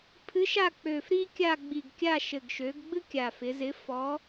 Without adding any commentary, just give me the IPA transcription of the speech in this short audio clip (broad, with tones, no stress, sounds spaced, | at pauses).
pʰ ɨ˨˥ ʃ a˦˨ k͡p ø˨˩ f ɾ iː˥ kʲ a˦˨ ɡ͡b i˨˩ ɡ kʲ a˦˨ ʃ ɘ˨˩ ɡ ʃ ø˩˧ ɡ ɡ͡b ɨ˥ kʲ a˨˩ f ɪ˩˧ z ɪ˨˥ f ɔ˨˥